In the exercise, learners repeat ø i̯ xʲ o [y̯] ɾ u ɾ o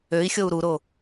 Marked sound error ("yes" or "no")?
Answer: yes